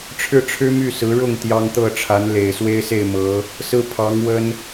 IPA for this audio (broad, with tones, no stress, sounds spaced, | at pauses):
ʈ͡ʂʰ ɻ̩˥ ʈ͡ʂʰ ɻ̩˥ m y˥˩ s ɹ̩˧˥ ɻ ʊ˥˩ ŋ t̪ j ɑ˥ ŋ t̪ ɤ˥˩ ʈ͡ʂʰ a˧˥ n l e˨˩ ɪ̯ s w e˥ ɪ̯ s e˥˩ ɪ̯ m ɤ˧˥ | s ɹ̩˥˩ pʰ ɑ˧˥ ŋ w ə˥ n